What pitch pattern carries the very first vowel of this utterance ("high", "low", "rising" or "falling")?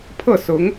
falling